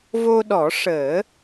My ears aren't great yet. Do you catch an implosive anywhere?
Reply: yes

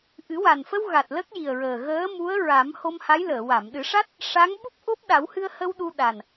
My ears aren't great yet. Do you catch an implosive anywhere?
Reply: yes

